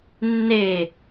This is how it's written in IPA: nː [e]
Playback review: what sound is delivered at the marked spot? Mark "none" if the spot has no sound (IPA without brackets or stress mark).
e